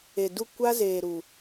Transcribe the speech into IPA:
e˨ du˦˨ kʷa˦zeː˨ɾu˨

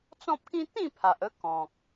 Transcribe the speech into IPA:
t͡sɔ̃˦p̚kĩ˦ t̪ĩ˥˧pʰa˨ʔə˧ kɔ̃˨k̚

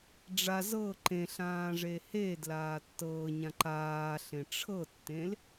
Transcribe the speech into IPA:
ɖ͡ʐa zɤ ǃẽɬãːʐe hedlaː tːɤːɲã ǃaːɬẽ ʈ͡ʂʰɤtːẽl

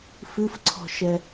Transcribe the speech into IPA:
fɨfǀʰɔ̤ʃɛ

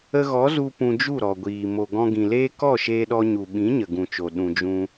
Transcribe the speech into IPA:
ə˧ɣɔ˨˦zu˧ pũ˧d͡ʒu˦˨ɾɔ˨ɡʷiː˨ mo˨ɡɔ̃˧ɡĩ˨leː˦ kɔ˦˨ʃeː˧ɗɔ˧ɲu˨ ɓĩ˨˦ɲə˨ɡũ˨t͡ʃo˨ ɗũ˧d͡ʒũ˦

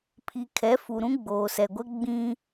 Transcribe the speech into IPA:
pʰi˨kʰɛ˨˦fu˨ ɾũ˦ɡ͡boː˨sɛ˨ɡʷɛ˦ ɡ͡bĩ˦

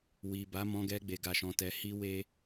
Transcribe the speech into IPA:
wi˨ ba˨˦mɔ̃˧ɡɛ˧ ɡ͡be˧ɡa˧ʃɔ̃˧tɛ˧ hi˦we˦

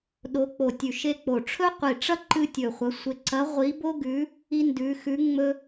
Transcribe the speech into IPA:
ɗo˧˥k͡po˧˩tʲʉ˧˩ ʃe˥k͡po˧˩ ʈ͡ʂʰɵ˥qʷi˧˩ʈ͡ʂɐ˥ ǃɨ˥tʲɵ˧˩χʷɐ˧˥ sʷe˧˩ǀɐ˧˥ ʁʷi˧˥bo˥ɡʉ˧˥ | i˥ndʉ˧˥ xʉ˧˥ ŋ͡mɵ˥

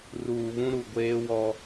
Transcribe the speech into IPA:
ruː˨βũ˦ɾu˨ ɡʷeː˦wɔ˦

